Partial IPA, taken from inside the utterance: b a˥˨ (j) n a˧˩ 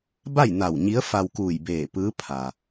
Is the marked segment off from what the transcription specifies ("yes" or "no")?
no